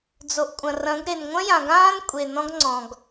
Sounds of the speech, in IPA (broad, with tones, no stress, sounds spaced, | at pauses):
d͡z o˨ ʔ kʷʼ ɐ̃˨ r ɐ̃˨˦ ɡ ɾ e˨ n ŋʷ ɐ̃˦ j ã˨ ɡ ãː˦ n kʷʼ e˨ n ɔ̃˦ ɡ ŋ͡ǀ ɔ̃˨ ɡ